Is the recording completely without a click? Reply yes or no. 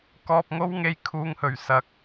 yes